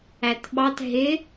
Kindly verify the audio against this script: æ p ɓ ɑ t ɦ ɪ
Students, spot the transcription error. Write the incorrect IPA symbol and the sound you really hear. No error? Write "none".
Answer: p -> t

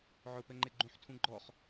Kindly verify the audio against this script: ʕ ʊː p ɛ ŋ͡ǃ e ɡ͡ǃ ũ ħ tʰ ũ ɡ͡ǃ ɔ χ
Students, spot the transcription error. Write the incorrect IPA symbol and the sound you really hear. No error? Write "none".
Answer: none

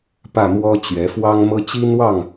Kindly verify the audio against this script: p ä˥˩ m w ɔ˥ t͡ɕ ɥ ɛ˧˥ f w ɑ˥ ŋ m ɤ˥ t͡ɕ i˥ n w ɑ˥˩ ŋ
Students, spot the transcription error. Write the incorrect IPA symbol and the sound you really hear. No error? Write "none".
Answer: none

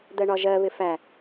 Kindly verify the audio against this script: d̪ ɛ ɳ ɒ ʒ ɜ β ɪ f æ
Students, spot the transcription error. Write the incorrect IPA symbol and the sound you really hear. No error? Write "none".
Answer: ɛ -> ɜ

